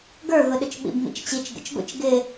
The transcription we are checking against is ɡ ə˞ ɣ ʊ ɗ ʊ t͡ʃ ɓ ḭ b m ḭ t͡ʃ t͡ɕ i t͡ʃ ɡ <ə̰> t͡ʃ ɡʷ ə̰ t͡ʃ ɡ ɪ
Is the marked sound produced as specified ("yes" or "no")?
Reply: yes